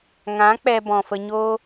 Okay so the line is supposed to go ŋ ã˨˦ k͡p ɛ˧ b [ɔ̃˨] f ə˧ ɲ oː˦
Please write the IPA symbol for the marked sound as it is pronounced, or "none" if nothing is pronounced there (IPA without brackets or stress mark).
ɔ̃˨